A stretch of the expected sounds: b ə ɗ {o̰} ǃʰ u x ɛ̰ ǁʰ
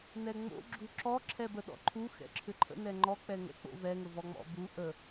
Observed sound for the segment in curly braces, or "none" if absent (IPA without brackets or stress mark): ɔ̰